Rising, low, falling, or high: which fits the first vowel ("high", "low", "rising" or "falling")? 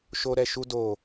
high